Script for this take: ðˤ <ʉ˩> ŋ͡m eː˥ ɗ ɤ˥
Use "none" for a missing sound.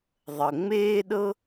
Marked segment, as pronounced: ə˩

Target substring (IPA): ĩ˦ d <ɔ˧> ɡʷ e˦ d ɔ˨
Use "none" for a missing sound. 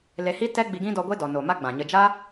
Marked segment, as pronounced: ɔ˧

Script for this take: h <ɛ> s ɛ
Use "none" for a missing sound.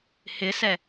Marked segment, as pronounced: ɪ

